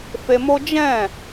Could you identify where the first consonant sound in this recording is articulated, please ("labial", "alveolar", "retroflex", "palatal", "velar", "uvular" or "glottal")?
labial